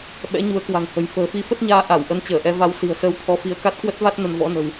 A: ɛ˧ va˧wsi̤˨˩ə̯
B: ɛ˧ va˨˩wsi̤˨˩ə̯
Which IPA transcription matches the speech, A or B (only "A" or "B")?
A